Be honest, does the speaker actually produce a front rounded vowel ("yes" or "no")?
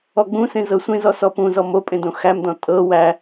no